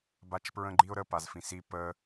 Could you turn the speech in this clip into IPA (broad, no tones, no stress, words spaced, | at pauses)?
bat͡ʃpɹə̃ɡ͡ǃiʊ̯ɾə pazfĩsi pə